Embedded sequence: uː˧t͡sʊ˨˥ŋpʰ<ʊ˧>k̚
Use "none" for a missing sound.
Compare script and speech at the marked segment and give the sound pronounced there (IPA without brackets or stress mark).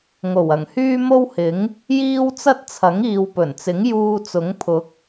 ʊ˨˥